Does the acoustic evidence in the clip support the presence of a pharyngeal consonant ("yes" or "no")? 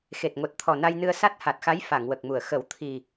no